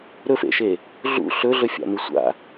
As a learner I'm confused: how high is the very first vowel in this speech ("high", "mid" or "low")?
mid